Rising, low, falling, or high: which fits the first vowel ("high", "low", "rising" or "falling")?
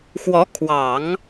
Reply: rising